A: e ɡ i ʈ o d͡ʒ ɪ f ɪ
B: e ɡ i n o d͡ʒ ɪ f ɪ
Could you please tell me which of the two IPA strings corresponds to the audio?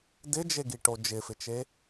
A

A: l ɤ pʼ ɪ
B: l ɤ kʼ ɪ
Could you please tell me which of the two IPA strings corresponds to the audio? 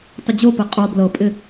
A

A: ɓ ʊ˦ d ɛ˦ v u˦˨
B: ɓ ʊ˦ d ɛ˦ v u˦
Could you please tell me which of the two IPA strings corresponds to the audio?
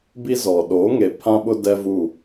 A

